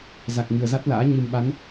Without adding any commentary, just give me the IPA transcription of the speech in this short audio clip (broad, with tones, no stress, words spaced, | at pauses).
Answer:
za˨˩k̚ŋɨ˨˩ə̯za˦˥t̚la̰ː˧˥ ɲɨ˨˩mɓa˨˦n